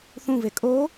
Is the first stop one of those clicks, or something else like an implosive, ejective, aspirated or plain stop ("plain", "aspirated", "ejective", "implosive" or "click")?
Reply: ejective